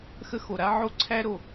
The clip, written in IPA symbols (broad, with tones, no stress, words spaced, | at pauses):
xə˥xo˩ɾa˥ ʕo˥ǀʰæ˥ɾo˩